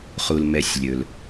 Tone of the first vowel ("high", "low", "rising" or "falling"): low